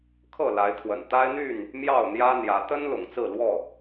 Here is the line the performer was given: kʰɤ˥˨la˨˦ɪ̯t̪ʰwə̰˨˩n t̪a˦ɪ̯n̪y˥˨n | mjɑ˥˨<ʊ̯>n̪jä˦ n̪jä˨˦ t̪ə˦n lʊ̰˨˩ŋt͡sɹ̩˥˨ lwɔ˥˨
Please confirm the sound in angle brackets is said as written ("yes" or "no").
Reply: yes